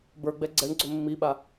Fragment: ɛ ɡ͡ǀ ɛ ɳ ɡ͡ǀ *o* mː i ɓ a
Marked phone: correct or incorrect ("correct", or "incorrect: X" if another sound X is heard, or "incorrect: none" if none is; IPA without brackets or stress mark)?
incorrect: ɵ